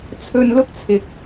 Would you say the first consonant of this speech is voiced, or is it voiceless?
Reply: voiceless